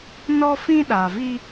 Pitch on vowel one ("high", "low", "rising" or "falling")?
high